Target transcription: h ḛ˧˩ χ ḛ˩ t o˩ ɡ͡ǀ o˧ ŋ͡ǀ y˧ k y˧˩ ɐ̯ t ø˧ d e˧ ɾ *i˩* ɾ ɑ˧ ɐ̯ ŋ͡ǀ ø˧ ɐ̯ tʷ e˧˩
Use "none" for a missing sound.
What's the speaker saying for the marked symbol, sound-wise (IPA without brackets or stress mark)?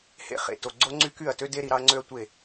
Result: i˩